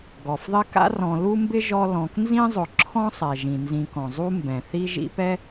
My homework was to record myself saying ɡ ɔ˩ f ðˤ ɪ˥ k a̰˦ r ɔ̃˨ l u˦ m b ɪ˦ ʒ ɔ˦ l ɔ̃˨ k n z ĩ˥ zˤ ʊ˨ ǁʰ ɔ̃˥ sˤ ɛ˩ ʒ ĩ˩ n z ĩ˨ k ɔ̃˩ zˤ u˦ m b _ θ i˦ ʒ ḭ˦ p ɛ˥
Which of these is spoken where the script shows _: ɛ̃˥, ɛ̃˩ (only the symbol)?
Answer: ɛ̃˩